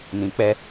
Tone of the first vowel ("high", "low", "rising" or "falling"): low